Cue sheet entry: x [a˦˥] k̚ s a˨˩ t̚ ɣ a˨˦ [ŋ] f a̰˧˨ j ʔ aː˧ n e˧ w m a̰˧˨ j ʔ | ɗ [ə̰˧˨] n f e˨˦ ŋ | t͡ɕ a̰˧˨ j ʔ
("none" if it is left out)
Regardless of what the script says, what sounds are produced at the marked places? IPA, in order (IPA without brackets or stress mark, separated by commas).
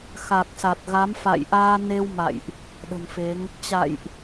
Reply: a˨˩, m, ə̤˨˩